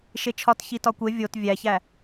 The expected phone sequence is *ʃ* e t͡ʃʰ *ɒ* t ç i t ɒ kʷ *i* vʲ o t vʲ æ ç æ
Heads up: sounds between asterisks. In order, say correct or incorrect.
correct, correct, incorrect: e

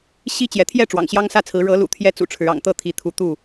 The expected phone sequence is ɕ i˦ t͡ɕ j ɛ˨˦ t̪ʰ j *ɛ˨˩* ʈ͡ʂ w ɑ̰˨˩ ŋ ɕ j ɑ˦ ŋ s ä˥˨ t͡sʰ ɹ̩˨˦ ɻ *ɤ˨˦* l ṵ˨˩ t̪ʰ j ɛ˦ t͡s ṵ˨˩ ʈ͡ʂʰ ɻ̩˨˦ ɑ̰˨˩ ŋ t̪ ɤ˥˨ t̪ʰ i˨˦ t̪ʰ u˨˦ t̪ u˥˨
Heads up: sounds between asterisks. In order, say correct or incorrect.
incorrect: ɛ˥˨, correct

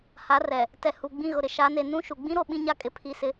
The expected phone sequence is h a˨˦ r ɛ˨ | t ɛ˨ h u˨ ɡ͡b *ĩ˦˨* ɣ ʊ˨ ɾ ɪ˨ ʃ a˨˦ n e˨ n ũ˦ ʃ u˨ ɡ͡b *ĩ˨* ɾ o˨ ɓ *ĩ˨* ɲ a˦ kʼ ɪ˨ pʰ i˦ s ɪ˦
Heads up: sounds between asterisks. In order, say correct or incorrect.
correct, incorrect: ĩ˦, incorrect: ĩ˦

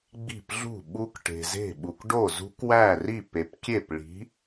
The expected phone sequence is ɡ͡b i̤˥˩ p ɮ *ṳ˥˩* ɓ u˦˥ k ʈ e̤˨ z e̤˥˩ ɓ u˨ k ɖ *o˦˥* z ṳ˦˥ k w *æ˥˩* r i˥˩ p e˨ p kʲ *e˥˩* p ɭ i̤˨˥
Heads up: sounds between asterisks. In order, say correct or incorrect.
correct, incorrect: o˥˩, correct, correct

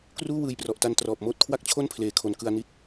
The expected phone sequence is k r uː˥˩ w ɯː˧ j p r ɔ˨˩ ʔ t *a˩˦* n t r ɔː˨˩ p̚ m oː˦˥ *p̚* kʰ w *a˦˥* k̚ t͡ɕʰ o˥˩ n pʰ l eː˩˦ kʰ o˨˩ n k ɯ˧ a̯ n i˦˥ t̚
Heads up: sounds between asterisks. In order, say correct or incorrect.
incorrect: a˧, incorrect: t̚, incorrect: a˥˩

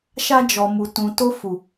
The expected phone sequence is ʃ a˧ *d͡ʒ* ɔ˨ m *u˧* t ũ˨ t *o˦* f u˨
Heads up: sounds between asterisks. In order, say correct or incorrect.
correct, incorrect: u˨, incorrect: o˧

